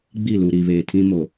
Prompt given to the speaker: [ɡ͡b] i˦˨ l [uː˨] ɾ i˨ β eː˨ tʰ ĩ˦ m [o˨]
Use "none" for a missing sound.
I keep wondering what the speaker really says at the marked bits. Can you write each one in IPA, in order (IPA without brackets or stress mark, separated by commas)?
ɡ͡b, u˨, o˨